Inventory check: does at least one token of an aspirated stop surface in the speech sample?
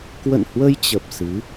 no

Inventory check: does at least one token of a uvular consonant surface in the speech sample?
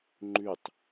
no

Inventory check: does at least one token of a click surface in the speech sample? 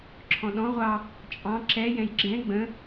yes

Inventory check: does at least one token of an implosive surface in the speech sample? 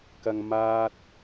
no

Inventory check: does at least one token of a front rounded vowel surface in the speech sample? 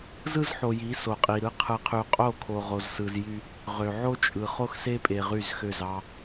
yes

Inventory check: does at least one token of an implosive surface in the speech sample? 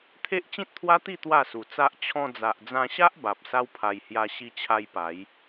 no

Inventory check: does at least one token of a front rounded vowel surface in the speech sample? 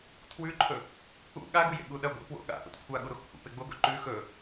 no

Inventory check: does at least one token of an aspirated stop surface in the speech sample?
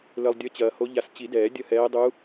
no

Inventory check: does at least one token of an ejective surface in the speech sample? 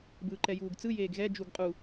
yes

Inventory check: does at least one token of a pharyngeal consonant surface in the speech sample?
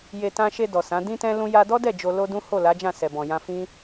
no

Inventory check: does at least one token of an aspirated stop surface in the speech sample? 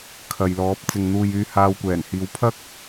yes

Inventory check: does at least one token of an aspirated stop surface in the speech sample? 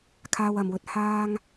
yes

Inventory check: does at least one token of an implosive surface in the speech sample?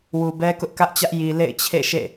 no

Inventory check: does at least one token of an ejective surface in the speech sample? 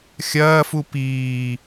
no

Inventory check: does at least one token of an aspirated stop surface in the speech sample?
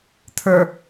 yes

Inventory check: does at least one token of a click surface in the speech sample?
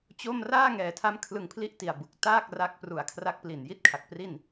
no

